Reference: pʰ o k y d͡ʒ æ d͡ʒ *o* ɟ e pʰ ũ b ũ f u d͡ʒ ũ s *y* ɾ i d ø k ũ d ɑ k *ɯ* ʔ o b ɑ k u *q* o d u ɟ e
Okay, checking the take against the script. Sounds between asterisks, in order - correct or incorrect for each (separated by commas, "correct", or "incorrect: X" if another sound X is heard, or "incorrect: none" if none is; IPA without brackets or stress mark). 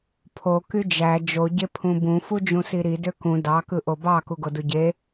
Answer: correct, incorrect: i, correct, incorrect: ɡ